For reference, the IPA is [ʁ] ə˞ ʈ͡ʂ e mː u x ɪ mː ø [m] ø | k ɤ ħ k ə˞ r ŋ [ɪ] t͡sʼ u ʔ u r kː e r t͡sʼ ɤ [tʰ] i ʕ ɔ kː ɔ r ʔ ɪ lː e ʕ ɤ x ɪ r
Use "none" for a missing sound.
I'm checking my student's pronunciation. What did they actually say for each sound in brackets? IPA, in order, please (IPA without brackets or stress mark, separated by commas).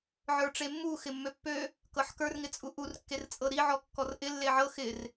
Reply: ʕ, pː, ɪ, ɾ